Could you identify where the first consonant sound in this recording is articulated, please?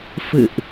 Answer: labial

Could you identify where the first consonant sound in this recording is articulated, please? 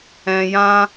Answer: palatal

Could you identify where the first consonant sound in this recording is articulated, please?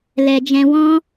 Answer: alveolar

